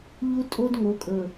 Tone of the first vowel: high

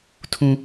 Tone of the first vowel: high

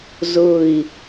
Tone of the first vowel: low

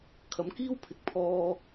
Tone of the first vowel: rising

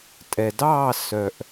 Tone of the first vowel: low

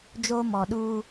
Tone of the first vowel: high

